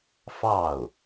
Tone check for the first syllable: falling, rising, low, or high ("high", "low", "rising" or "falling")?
falling